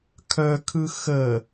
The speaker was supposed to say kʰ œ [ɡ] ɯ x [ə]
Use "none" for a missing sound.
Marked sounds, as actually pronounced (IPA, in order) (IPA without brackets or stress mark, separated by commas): kʰ, ə